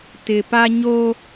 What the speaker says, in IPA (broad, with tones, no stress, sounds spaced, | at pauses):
t ɪ˨ p a˦ ɲ o˦